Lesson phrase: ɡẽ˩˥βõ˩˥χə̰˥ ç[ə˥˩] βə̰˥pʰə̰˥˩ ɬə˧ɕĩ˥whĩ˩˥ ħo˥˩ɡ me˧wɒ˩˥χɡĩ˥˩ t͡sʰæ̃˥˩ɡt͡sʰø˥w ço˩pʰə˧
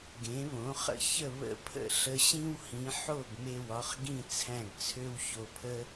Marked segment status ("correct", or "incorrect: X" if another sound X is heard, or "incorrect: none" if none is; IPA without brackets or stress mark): correct